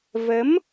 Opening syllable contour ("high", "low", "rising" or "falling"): rising